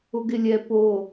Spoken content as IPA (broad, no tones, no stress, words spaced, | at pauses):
ʊɡɪlʲɛ po